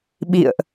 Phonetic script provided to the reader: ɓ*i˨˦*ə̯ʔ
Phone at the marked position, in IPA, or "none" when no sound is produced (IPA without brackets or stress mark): ḭ˧˨